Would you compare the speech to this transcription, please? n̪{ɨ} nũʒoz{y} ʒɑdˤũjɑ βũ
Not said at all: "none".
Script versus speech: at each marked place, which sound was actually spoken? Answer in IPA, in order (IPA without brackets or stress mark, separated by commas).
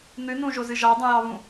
ɨ, ɨ